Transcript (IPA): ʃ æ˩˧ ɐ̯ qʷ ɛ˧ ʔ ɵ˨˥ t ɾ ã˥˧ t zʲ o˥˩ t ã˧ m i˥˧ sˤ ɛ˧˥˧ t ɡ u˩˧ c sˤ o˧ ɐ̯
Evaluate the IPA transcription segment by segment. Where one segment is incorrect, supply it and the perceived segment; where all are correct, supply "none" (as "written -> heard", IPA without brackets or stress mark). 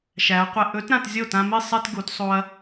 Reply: c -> t